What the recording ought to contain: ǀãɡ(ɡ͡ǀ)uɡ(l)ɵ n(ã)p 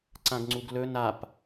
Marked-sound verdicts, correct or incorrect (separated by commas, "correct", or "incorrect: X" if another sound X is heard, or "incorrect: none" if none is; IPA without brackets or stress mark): incorrect: ŋ͡ǀ, correct, incorrect: a